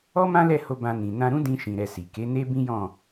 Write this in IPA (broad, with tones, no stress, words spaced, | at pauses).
ɔ˦mã˦lɛ˦˨ho˧ bã˨ nĩ˨nã˧ɾũ˦ dĩ˧ʃĩ˨ɾɛ˨ si˨ke˨˦ne˦ bĩ˦jɔ̃˦˨